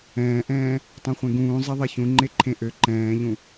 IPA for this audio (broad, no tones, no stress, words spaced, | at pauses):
ɛ̃ːʔɛ̃ː | tˤũχʷẽɡũː zˤeðˤeçũ ŋ͡ǃeǃʰẽʔø ǃɛ̃ːʎũ